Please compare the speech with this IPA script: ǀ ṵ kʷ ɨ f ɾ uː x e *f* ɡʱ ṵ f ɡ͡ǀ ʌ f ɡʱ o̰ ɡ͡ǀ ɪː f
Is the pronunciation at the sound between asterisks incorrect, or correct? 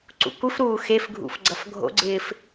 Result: correct